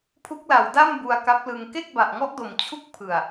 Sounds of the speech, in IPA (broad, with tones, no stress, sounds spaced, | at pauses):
pʰ u˦˥ k̚ l a˨˩ w d a˥˩ m b u˧ a̯ k a˦˥ p̚ l ɯ˧ ŋ k e˥˩ k̚ b a˨˩ ʔ ŋ ɔ˦˥ ʔ d o˨˩ m t͡ɕʰ u˥˩ k̚ pʰ ɯ˨˩ a̯